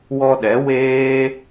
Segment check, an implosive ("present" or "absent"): present